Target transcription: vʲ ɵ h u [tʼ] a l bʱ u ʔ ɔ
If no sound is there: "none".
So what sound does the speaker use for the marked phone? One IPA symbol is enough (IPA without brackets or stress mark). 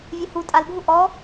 tʼ